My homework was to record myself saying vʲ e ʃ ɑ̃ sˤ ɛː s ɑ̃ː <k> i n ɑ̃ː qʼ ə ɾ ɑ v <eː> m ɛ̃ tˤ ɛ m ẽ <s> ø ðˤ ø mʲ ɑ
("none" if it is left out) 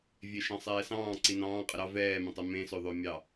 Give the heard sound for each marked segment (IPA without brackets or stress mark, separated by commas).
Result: ǀ, ɛː, s